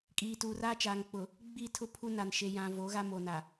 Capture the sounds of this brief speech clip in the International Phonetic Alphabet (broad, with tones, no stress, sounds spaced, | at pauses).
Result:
kʼ iː˨ t uː˨ r aː˦ t͡ʃ aː˨ ŋ k͡p ʊ˨ | ɡ͡b i˦˨ tʰ ʊ˦ pʰ u˦ n a˨ n ʃ e˨ j ã˨ v o˨˦ ɣ a˦ m o˨ n a˨